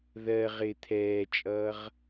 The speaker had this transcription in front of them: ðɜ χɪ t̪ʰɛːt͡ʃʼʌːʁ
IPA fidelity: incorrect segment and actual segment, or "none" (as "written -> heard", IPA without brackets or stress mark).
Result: χ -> ʁ